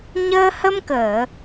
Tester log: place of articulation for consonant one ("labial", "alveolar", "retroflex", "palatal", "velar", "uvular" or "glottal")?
palatal